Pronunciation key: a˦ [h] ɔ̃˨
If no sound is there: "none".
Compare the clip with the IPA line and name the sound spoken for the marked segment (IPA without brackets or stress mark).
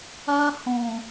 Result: h